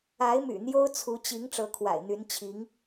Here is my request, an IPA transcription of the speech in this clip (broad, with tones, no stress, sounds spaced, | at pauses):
a˧˥ ɪ̯ m y̰˨˩ n̪ j o˥ ʊ̯ t͡sʰ u˧˥ t͡ɕ i˧˥ ŋ ʈ͡ʂ ɤ˧˥ kʰ w a̰˨˩ ɪ̯ n̪ y˧˥ n t͡ɕʰ i˧˥ ŋ